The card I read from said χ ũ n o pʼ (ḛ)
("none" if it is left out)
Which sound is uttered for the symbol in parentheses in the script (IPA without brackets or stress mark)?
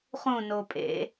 ḛ